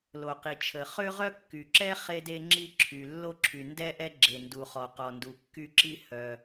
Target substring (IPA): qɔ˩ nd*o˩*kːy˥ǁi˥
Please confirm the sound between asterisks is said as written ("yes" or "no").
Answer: no